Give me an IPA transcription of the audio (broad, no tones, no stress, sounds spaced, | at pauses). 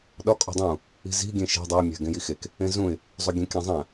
ɗ ɒ kʼ o̤ dˤ ũ | i̤ z i̤ ɡʲ ẽ ʃ e̤ dˤ æ mʲ æ̤ ɡ ẽ j i x e k | ẽ z ũ ɪ̯ | zˤ o ɡʲ ẽ kʲ æ̃ zˤ æ̃